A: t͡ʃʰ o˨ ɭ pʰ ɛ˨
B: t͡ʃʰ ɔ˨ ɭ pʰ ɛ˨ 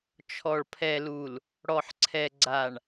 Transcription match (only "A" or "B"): B